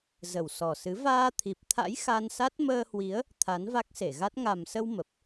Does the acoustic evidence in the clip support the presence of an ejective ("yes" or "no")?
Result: no